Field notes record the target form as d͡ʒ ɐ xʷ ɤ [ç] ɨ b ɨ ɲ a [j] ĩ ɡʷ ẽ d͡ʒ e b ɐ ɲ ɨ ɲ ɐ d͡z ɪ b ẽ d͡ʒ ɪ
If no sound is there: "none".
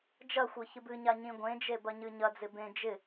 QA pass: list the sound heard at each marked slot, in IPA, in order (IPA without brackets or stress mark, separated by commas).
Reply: ç, ɲ